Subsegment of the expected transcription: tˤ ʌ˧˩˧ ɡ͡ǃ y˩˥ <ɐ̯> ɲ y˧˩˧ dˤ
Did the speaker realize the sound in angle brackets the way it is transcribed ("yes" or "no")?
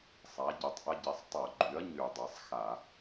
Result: yes